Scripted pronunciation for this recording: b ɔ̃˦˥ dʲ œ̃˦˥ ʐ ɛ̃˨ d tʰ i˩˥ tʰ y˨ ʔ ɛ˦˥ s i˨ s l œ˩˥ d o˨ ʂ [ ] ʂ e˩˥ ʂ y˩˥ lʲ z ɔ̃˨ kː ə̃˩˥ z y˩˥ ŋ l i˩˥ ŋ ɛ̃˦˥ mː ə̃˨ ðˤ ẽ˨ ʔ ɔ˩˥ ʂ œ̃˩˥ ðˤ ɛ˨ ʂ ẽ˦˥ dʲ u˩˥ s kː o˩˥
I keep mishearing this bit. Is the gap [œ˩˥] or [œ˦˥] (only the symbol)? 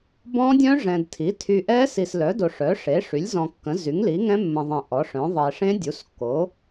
œ˩˥